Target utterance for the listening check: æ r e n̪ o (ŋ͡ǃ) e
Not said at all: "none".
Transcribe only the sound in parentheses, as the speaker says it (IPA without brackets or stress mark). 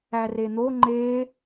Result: ŋ͡ǃ